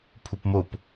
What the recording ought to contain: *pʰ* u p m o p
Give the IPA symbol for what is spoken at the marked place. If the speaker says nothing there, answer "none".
pʰ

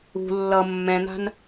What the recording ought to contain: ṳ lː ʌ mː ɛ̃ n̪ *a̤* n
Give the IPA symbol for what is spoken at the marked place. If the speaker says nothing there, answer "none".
a̤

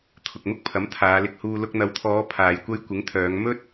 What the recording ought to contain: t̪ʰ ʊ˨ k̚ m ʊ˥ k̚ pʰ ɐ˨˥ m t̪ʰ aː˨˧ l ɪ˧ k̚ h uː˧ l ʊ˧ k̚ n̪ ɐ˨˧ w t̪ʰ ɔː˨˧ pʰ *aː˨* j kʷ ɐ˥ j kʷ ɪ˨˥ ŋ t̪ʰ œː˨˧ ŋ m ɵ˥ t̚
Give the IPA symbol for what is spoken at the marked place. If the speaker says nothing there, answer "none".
aː˨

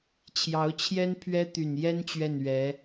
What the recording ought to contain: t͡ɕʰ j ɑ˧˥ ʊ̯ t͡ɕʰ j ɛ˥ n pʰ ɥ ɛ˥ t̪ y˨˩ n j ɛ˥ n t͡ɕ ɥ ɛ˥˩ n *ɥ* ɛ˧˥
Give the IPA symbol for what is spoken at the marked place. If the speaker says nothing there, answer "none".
ɥ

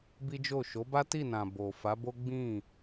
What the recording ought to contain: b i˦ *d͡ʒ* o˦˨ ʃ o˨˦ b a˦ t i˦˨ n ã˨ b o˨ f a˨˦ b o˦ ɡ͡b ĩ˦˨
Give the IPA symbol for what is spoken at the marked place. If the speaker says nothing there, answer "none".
d͡ʒ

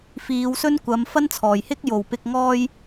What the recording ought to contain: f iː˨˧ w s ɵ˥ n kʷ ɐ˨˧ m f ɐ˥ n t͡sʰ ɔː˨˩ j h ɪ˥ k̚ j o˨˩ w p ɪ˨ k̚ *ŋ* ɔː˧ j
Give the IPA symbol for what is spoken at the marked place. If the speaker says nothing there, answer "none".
ŋ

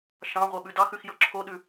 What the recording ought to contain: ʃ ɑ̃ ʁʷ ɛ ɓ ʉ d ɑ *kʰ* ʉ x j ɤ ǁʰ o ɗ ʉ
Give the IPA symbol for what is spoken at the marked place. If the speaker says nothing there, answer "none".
x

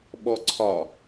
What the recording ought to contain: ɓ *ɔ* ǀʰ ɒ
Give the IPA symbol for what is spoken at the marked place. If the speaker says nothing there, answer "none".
ɔ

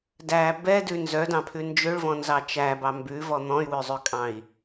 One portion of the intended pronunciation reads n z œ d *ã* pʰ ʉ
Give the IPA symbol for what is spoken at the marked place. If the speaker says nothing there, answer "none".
ɑ̃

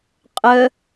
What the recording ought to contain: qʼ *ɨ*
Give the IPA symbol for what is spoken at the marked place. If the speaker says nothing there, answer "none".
ə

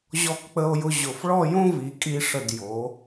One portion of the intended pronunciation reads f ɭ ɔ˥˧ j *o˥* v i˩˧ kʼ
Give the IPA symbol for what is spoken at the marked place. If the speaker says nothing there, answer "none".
õ˥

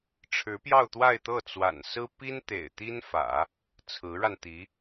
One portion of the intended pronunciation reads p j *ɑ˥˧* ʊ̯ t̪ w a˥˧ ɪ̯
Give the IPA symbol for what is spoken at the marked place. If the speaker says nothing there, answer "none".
ɑ˥˧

